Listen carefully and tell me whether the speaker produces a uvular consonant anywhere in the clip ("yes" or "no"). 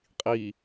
yes